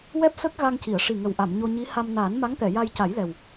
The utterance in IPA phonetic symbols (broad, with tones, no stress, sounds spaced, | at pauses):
w ɛ˦˥ p̚ s əː˦˥ k̚ ɣ a˧ ŋ c i˨˩˨ ə̯ ʂ i˨˩ ŋ ə˨˩ w ʔ a˨˩˨ m ɲ o˧ ɲ i˧˥ h a˧ m n aː˨˩˦ n m a˧˥ ŋ t̪ ɛ˨˩˨ j a˧ j c a˨˩˦ j l ɛ˨˩ w